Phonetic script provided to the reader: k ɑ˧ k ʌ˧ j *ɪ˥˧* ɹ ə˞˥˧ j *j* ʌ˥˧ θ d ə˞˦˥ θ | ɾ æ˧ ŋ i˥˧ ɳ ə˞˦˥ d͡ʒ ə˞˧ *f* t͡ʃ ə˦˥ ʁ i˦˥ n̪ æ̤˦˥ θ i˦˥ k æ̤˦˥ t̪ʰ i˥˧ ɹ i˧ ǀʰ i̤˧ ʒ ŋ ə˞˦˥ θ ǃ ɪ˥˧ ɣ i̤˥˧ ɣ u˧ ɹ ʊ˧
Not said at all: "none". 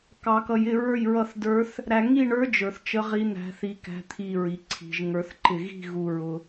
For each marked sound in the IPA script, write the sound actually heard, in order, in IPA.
ɪ˥˧, ɹ, θ

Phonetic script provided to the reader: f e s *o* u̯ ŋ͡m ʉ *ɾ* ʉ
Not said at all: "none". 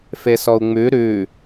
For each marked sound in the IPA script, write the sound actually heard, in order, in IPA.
ɔ, ɾ

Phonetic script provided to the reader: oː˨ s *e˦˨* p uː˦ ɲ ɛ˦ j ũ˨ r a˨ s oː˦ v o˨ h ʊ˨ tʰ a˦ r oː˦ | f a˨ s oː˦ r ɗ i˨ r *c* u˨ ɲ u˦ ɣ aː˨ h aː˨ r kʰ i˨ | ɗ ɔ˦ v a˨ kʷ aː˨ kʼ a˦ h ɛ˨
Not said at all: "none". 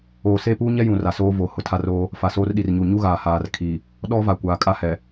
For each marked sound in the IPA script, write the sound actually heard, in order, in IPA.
e˦˨, ɲ

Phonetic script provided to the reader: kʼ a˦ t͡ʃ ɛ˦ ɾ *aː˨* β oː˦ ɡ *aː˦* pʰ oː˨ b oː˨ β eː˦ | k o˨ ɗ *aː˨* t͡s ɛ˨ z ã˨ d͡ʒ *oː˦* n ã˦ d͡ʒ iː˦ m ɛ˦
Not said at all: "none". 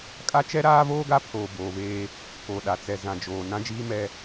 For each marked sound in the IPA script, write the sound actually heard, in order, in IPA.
aː˦, a˦, a˨, oː˨

